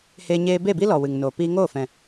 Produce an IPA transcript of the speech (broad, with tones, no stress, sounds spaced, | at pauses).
h eː˧ ɲ eː˧ b e˦˨ b i˦ l ɔ˨ w ɨ˨ ŋ n oː˨ p iː˧ ŋ oː˦˨ f ɛ̃˨